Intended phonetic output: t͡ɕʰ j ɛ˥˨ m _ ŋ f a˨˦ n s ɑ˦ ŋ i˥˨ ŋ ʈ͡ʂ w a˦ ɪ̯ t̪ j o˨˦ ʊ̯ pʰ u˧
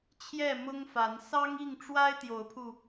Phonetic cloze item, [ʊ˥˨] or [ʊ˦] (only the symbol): ʊ˦